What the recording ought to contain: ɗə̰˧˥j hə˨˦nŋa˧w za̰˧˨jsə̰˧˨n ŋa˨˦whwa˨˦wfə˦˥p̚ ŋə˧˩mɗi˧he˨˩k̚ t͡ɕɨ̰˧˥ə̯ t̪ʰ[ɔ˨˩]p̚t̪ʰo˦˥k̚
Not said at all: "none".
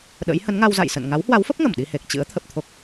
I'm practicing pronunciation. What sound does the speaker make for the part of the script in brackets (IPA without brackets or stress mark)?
ə˨˩